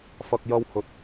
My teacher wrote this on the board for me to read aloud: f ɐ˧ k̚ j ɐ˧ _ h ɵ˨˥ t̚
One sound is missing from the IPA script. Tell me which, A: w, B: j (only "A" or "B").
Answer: A